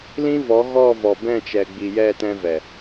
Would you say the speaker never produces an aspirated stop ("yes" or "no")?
yes